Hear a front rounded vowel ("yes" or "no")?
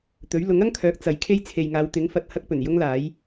yes